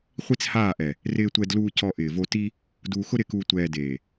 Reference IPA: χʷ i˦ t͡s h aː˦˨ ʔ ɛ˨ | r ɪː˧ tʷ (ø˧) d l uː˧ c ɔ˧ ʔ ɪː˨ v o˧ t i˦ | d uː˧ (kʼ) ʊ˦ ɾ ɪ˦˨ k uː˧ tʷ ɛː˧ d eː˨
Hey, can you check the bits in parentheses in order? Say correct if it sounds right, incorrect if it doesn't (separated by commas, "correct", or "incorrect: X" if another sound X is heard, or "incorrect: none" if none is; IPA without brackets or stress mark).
incorrect: ɛ˧, incorrect: x